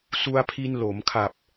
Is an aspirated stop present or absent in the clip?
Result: present